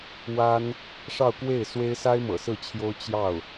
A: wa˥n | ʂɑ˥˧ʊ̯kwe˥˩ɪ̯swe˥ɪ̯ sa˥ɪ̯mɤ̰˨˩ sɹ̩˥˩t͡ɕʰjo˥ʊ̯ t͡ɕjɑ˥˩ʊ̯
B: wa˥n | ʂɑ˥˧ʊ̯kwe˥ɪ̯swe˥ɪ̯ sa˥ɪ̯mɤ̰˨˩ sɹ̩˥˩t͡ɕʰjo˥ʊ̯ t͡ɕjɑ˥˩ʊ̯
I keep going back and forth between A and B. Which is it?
A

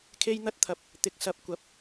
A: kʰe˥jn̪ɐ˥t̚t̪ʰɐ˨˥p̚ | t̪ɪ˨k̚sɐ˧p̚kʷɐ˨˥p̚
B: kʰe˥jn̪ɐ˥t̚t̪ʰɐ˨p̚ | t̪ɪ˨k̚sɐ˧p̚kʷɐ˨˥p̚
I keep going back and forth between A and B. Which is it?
A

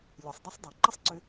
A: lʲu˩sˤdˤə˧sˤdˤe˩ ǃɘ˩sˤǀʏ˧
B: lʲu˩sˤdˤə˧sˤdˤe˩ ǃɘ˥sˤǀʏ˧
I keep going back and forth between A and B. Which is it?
B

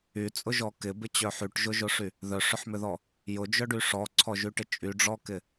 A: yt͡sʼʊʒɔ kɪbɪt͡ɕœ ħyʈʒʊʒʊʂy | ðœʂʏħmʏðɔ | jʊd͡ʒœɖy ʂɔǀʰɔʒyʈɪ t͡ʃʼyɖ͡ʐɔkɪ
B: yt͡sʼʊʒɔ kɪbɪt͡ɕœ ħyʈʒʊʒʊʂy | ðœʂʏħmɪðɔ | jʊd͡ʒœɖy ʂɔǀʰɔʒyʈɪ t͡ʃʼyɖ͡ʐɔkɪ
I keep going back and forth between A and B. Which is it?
A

